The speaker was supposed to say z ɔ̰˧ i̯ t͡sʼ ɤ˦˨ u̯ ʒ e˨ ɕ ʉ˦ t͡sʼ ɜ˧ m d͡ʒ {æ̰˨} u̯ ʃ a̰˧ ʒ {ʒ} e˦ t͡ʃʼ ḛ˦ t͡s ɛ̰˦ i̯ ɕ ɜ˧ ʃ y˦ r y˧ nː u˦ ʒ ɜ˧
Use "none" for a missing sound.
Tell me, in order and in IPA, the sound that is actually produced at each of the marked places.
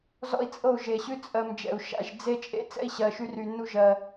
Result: ɛ̰˨, d͡z

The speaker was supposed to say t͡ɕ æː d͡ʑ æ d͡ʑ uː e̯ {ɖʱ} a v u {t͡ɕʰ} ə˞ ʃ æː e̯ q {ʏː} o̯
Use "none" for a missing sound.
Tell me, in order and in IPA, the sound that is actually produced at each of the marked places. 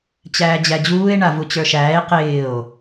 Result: ɳ, t͡ɕ, ɪː

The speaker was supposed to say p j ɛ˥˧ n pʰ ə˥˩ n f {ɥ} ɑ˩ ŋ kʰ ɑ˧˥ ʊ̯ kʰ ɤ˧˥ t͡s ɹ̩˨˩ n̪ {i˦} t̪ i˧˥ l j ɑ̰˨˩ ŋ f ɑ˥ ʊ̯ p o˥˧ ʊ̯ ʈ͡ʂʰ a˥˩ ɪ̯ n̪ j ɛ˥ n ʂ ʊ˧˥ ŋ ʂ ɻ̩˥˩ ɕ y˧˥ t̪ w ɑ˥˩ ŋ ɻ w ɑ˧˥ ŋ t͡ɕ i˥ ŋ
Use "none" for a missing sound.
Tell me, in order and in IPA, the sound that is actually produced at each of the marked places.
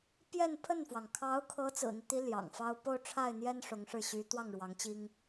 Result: w, i˦

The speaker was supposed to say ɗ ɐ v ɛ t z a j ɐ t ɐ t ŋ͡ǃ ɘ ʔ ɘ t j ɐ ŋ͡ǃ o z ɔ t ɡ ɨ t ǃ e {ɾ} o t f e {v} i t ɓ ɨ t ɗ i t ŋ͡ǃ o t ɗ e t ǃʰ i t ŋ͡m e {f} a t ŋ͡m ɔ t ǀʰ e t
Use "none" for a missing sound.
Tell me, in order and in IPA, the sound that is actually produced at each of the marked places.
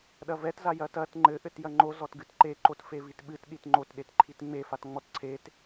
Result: ǃ, v, f

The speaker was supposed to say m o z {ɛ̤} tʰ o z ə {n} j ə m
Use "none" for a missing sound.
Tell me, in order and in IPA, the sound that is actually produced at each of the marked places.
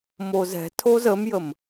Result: ɛ̤, m

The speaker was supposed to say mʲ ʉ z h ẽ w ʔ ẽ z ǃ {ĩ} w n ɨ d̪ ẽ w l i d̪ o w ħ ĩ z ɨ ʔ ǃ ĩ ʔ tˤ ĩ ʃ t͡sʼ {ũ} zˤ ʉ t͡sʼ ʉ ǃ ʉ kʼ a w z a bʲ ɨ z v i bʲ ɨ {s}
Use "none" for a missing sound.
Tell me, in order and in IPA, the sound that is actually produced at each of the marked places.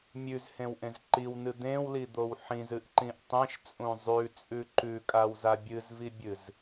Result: i, ũ, z

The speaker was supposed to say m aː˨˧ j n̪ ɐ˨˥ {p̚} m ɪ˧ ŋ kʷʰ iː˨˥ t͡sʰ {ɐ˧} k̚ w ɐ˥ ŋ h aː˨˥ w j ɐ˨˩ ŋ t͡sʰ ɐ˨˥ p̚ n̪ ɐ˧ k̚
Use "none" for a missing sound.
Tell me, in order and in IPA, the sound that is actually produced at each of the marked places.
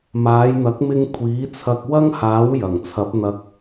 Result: k̚, ɐ˧

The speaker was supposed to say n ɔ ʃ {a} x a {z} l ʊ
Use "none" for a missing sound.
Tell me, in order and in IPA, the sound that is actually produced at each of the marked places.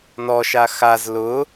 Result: a, z

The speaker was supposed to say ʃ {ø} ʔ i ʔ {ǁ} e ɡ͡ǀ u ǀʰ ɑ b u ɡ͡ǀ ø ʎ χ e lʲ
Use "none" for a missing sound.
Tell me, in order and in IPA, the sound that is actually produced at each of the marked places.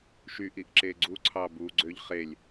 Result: y, ǁ

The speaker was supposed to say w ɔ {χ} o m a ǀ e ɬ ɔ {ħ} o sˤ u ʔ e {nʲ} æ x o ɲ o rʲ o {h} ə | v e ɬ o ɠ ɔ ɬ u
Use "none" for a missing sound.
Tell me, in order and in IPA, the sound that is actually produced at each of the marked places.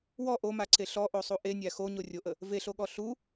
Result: ʔ, ʔ, nʲ, ʔ

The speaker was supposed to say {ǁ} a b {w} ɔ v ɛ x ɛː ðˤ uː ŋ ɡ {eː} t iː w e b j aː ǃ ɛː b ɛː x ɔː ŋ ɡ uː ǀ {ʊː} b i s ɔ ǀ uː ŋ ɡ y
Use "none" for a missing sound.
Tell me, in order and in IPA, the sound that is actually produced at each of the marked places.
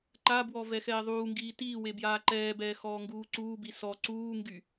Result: ǃ, w, iː, uː

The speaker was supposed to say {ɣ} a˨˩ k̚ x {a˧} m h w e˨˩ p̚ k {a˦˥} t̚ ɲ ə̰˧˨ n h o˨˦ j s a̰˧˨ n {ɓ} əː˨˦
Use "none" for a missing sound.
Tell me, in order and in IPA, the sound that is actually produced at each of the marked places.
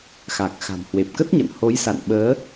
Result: x, a̤˨˩, ə˦˥, ɓ

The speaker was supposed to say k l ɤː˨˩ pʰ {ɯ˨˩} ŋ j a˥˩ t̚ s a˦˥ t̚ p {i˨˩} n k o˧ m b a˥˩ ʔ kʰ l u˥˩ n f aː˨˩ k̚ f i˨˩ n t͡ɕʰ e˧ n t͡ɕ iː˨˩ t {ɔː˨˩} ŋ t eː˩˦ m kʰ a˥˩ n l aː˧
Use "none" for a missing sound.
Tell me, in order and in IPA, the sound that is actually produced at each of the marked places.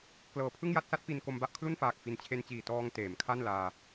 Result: ɯ˥˩, i˧, ɔː˧

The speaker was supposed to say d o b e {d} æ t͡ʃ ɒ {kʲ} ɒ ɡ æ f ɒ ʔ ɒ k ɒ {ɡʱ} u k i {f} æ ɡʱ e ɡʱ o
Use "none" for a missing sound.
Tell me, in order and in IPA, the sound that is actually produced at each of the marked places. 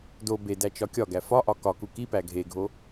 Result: d, kʲ, k, p

